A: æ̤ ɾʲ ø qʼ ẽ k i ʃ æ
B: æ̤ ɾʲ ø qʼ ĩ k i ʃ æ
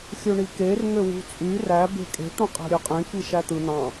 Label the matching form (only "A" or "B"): A